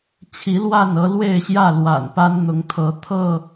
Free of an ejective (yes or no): yes